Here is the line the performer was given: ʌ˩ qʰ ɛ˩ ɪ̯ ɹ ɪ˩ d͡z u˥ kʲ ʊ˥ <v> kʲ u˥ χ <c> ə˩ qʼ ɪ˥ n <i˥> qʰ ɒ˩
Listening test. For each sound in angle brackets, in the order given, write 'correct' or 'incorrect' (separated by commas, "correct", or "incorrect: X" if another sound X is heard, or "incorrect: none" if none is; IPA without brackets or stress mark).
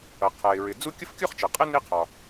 incorrect: f, incorrect: t͡ʃ, correct